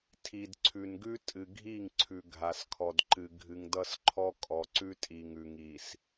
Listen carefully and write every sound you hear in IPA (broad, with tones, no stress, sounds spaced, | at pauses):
tʰ i˨ d ǀʰ ʉ˨ n ɡ ʉ˦ tʼ ɨ˨ ɡʱ i˦˨ ŋ ǀʰ ʉ˨ ɡʱ a˨ s kʰ ɔ˨ d ǃ ɨ˨ ɡʱ ɨ˨ ŋ d ʌ˦ s ǃʰ ɔ˦ kʼ ɔ˨ ǀ ʉ˦ tʼ i˨ ŋ ʉ˨ ŋ i˨ s